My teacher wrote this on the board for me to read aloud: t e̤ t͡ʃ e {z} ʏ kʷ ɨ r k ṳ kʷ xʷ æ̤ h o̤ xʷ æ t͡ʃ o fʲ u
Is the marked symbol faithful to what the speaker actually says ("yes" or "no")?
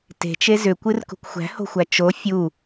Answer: yes